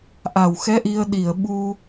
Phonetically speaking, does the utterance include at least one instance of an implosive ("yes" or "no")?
yes